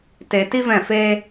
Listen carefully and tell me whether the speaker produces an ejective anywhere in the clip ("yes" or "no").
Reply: no